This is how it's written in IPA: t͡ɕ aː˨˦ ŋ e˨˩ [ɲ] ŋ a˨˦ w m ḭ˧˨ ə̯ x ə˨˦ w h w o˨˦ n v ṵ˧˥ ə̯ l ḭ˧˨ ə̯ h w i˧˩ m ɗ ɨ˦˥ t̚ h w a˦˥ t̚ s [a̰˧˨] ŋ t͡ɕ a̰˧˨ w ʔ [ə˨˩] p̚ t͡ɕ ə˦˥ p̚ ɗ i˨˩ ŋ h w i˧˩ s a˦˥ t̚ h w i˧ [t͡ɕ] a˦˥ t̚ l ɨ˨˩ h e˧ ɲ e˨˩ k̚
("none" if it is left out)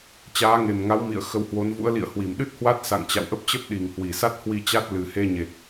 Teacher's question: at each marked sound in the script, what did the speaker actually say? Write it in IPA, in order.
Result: m, a̰˧˨, ə˦˥, t͡ɕ

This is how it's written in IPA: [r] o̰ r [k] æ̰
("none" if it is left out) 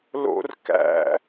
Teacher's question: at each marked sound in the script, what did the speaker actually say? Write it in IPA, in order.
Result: l, k

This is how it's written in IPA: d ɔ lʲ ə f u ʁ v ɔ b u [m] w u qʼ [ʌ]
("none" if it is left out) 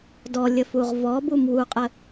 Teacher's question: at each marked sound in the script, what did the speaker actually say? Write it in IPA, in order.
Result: m, ə

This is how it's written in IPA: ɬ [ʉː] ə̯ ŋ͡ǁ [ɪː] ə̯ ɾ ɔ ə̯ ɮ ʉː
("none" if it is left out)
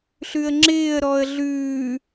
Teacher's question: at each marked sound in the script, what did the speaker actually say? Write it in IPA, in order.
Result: ʉ, ɪː

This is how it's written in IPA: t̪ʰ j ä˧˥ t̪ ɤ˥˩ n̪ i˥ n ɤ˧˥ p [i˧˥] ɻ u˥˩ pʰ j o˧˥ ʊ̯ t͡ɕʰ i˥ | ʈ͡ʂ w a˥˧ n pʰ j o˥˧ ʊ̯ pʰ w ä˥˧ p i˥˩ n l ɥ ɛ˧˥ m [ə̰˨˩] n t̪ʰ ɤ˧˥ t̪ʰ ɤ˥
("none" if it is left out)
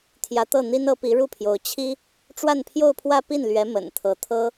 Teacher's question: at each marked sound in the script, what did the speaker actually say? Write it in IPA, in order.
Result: i˧˥, ə̰˨˩

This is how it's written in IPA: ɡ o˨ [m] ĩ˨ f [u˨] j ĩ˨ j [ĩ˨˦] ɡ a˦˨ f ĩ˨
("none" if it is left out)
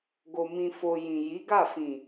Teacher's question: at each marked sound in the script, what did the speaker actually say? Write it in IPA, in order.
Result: m, o˨, i˨˦

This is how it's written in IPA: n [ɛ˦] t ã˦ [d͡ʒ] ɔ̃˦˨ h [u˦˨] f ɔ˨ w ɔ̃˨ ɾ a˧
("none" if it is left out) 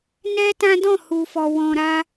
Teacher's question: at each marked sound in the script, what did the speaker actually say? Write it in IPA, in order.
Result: ɛ˦, d, u˨

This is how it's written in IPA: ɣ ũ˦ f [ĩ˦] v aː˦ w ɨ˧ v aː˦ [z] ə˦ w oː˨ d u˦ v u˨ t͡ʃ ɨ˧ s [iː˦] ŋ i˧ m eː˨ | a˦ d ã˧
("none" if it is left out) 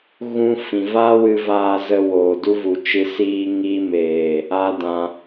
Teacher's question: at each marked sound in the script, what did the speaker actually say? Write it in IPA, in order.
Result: ĩ˨, z, iː˦

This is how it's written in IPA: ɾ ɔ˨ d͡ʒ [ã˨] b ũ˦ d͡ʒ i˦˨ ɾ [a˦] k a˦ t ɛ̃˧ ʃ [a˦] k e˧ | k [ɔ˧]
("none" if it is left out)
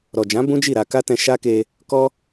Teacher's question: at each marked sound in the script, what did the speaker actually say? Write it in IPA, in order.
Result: ã˨˦, a˧, a˦, ɔ˧

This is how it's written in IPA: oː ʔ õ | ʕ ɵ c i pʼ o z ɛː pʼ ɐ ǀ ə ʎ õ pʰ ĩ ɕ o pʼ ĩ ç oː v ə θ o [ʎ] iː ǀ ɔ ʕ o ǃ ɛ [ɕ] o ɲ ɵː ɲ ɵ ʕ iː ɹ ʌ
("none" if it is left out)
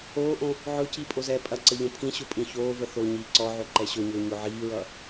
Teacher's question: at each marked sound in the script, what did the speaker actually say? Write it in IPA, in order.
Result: ɲ, ɕ

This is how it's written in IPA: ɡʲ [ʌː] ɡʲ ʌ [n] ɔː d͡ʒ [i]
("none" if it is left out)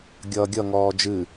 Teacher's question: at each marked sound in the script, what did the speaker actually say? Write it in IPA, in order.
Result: ʌː, ŋ, ɨ

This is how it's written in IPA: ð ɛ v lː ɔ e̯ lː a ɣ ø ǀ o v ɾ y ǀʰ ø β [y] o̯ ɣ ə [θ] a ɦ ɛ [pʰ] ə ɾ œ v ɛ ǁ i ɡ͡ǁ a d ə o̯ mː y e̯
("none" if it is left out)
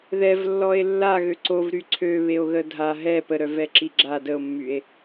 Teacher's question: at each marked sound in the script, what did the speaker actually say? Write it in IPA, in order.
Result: e, dʱ, p

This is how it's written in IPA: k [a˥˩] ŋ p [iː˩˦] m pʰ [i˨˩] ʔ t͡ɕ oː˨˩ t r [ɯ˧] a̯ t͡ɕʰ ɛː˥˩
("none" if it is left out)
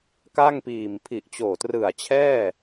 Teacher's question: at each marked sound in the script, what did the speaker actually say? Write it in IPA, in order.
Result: a˥˩, iː˨˩, i˨˩, ɯ˨˩

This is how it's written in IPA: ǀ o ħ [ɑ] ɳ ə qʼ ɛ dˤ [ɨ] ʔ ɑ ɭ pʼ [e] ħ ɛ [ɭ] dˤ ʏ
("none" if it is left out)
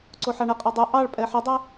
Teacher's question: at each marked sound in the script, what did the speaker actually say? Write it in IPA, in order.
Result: ɑ, ɨ, ɛ, none

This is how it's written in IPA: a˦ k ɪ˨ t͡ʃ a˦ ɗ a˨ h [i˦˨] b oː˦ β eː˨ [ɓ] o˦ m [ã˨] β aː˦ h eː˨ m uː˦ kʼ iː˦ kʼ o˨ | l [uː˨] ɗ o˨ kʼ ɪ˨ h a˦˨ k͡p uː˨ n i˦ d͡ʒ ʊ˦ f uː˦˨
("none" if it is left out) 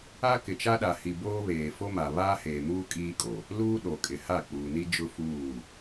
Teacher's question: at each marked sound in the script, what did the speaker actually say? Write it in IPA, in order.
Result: i˨, f, a˨, uː˦

